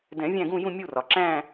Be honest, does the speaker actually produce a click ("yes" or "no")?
yes